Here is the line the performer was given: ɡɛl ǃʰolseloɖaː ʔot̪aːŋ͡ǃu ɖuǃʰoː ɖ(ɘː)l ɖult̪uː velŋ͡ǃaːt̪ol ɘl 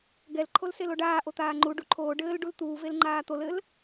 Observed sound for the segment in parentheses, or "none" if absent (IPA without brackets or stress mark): ɘː